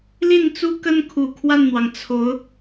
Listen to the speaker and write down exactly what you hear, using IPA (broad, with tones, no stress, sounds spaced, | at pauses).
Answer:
l i˥˩ n t͡s u˥ k ə˥ n kʰ u˨˩ kʰ w a˥˩ n n̪ w ɑ˩ ŋ t͡sʰ o˧˥ ʊ̯